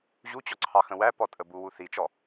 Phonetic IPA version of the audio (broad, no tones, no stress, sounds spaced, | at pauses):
ʑ u t͡ɕ ɔ ǀʰ ɑ x ə̃ w æ p ɔ tʼ ə b u w u θ i t͡ʃ ɔ